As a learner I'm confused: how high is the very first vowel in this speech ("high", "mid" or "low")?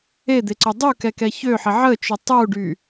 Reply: mid